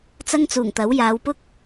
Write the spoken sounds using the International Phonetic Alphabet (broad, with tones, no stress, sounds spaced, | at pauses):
t͡s ɐ˥ ŋ t͡s uː˨˩ ŋ t̪ ɐ˨˥ w j aː˨˧ w p ʊ˥ k̚